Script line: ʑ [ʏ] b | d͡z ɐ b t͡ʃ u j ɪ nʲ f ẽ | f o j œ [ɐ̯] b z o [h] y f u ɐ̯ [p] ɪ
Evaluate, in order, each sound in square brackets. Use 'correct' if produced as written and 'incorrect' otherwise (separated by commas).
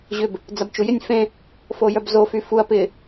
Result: correct, incorrect, incorrect, correct